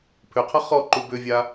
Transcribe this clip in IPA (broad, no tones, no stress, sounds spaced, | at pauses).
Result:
pʰ ʏ qʰ ʌ χ ɔ ǃ u b ʏ vʲ a